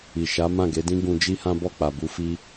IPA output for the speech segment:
i˨ʃa˨˦mã˦˨ ɡe˨˦dĩ˦ ɡũ˧d͡ʒi˦hã˦ bɔ˦˨k͡pa˨bu˨˦fi˧

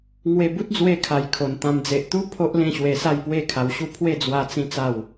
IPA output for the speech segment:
ŋwe˧bu˦t̚d͡zwe˧kʰa˨˩j kʰo˨˩nt̪ã˧m d͡ze˨ʔt̪u˦ pʰo˦ʔ lẽ˥˧ɕwe˧sa˥˧j pwe˥˧kʰa˧wɕu˥˧ pʰwe˥˧d͡zwa˧ t͡sĩ˦t͡sa˥˧w

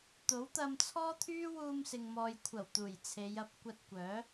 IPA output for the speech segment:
t̪o˨˥wt̪ɐ˧m t͡sʰɔː˥t̪ʰyː˥ wuː˧msɪ˨ŋmɔː˨jkʷʰɐ˨˩w t̪uː˨˩jt͡sʰe˨˧jɐ˨˥p̚ kʷɐ˧t̚kʷœː˨˥

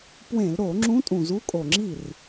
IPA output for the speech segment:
pwẽ˧˩˧lɾo˧˩˧ ŋ͡ǁũ˧˥tʼũ˨˩ zu˧˥kʼo˨˩ŋ͡ǁi˥˩r

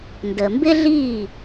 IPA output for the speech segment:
ndəː˩mbɪ˥ɮiː˥˩

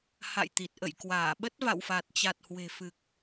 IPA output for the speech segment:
ha̰˧˨jt̪i˨˩t̚ ʔə̰˧˨jkwaː˧˩ɓə˦˥t̚ va̰˧˨wfa˨˩t̚t͡ɕa˨˩t̚ hwe̤˨˩fɨ˨˩k̚

